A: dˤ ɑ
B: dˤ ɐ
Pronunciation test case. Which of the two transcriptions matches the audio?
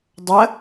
B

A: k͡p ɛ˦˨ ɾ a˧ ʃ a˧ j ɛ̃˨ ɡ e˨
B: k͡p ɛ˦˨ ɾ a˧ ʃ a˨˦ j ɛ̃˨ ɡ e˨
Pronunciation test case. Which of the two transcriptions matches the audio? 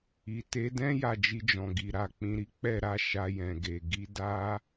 A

